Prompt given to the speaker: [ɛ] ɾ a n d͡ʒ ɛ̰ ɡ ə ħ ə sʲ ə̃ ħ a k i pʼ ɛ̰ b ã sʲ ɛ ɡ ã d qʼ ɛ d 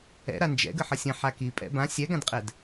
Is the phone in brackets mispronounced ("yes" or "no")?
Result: yes